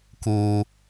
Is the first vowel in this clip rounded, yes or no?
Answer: yes